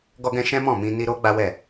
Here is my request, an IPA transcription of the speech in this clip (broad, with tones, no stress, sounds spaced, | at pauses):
ɡ ɔ˧ ɡ ɛ̃˧ ʃ ɛ̃˦ m ɔ̃˦˨ m ĩ˧ n i˦ ɾ o˦ ɡ͡b a˦ w ɛ˦˨